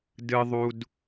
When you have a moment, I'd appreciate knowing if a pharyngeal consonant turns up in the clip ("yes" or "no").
no